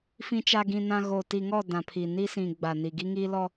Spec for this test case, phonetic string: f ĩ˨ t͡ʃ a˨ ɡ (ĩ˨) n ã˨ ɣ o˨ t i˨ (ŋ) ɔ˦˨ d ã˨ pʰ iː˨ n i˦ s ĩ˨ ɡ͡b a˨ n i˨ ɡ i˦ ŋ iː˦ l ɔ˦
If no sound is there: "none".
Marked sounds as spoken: ĩ˨, ŋ

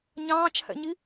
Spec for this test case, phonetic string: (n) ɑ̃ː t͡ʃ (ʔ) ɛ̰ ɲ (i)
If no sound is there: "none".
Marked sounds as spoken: ɲ, h, i

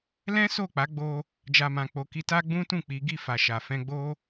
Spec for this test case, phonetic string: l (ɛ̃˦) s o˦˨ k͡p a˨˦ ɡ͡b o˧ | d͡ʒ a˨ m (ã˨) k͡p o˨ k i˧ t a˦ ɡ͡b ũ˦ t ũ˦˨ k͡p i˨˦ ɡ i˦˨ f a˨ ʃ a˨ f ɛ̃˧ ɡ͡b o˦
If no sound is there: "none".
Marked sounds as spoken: ɛ̃˦, ã˨

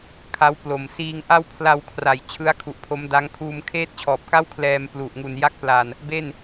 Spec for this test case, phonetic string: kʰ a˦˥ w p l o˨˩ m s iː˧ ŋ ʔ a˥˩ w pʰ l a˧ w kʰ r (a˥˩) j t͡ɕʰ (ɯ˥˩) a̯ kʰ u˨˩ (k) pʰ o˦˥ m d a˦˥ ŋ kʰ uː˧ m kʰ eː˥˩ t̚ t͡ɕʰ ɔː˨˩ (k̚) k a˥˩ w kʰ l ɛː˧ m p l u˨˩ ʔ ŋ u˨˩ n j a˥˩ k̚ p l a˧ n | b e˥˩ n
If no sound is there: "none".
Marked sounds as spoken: a˨˩, ɯ˦˥, ʔ, p̚

